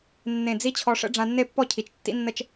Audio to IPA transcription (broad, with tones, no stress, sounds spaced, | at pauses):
nː ẽ˧˩ d͡z i˥ t͡ɕʰ ɔ˧ ʂ ə̰˥ ɖ͡ʐ ã˧ nː e˥˧ pː ɔ˥˧ cʰ i˩˧ t͡ʃ tː ḭ˥ nː ə˥˧ t͡ʃ